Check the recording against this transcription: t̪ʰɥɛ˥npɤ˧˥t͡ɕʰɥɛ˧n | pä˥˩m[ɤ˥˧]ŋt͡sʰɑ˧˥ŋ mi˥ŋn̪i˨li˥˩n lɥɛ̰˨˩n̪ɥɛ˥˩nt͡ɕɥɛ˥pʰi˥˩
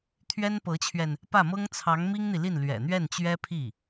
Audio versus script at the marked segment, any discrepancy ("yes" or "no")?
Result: yes